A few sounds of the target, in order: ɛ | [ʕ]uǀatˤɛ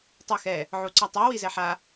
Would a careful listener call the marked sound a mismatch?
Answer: no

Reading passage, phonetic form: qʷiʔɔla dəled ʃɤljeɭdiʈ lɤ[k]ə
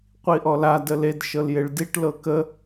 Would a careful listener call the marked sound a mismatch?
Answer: no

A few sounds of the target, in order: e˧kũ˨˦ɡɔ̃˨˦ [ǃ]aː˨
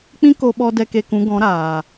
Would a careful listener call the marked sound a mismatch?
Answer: yes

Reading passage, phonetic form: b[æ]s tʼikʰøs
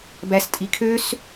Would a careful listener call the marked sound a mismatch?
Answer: no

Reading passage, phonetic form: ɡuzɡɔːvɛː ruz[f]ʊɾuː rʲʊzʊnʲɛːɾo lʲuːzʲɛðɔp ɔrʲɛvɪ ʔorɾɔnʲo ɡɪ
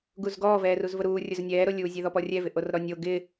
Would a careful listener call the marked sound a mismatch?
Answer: yes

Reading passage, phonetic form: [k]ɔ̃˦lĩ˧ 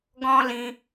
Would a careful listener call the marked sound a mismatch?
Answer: yes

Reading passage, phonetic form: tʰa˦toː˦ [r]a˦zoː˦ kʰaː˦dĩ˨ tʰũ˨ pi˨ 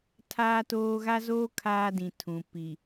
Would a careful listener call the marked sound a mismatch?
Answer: yes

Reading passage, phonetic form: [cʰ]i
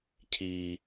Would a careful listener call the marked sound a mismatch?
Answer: no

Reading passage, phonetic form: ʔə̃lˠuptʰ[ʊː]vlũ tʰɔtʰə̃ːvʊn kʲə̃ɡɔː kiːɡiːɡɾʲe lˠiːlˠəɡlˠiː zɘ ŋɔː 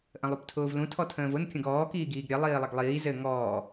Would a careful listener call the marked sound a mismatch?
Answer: no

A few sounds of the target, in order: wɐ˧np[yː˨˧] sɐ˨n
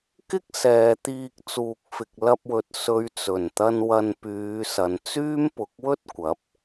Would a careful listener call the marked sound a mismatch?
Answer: no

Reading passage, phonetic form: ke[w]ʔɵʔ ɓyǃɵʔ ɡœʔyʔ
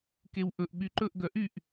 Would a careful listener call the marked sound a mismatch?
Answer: no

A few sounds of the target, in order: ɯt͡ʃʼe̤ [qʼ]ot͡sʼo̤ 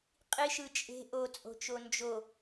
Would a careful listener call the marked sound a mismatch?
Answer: yes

